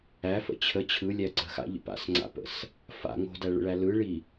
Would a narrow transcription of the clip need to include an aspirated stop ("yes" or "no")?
yes